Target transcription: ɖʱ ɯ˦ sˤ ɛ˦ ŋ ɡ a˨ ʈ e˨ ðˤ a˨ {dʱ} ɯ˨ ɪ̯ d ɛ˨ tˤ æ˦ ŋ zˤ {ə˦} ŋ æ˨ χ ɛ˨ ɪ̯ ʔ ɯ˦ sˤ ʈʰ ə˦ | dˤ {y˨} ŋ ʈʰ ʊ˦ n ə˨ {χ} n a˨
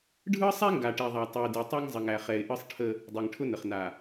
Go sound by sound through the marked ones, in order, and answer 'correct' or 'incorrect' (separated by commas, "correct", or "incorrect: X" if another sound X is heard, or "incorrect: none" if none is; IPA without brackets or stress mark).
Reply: incorrect: tˤ, incorrect: ə˨, incorrect: e˨, correct